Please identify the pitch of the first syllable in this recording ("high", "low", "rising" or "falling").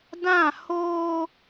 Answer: falling